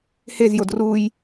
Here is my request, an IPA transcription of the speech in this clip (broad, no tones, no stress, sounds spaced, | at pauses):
h e z j o d r u j